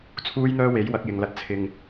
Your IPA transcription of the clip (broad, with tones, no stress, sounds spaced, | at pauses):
t͡sʰ uː˥ j n̪ œː˥ w e˨˥ j w ɐ˨˥ k̚ j ɪ˨ ŋ l ɐ˧ t̚ t͡sʰ ɪ˨ ŋ